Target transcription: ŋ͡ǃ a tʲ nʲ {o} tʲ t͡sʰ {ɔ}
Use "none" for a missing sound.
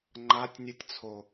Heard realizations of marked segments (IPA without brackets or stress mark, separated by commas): u, o